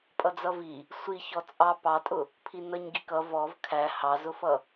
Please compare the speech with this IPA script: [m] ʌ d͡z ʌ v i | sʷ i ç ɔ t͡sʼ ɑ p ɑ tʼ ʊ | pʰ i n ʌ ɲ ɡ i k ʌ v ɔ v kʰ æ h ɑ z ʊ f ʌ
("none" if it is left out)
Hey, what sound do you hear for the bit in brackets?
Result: pʼ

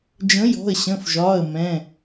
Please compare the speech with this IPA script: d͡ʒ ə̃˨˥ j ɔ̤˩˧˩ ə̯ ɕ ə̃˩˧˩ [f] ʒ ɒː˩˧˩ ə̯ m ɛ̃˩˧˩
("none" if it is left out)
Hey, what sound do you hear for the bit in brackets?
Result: f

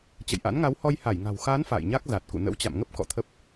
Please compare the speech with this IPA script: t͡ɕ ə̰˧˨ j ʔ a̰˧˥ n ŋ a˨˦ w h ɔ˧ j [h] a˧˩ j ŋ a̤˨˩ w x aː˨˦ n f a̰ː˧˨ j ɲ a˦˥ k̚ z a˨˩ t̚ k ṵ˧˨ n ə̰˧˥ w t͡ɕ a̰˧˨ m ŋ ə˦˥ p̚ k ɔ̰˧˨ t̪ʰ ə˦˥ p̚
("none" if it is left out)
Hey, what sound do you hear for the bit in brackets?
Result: h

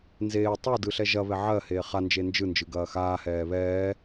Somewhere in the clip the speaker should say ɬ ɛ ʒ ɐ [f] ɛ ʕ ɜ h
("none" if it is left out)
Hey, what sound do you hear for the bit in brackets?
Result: β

